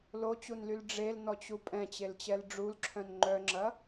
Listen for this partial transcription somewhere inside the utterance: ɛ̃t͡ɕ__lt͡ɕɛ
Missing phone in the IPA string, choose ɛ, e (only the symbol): e